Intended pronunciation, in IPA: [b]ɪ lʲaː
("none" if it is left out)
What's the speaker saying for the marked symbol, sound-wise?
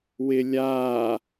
w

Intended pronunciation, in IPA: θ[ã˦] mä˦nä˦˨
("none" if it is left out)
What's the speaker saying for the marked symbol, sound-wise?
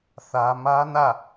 ä˦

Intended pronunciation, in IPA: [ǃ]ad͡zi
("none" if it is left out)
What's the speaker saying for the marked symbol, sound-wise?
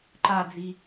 ǃ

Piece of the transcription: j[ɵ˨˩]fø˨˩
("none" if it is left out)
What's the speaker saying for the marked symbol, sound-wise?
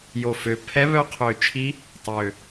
o˨˩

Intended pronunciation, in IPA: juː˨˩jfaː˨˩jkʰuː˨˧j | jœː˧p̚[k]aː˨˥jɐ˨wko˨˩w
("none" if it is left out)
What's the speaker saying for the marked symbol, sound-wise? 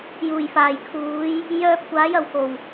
kʷ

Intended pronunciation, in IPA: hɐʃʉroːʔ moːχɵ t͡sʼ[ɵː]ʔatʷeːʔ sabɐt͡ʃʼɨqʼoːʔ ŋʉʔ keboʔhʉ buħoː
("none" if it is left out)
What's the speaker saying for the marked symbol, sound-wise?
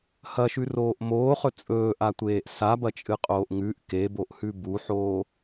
ɵː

